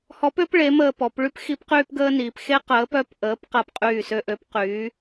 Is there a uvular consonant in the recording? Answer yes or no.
yes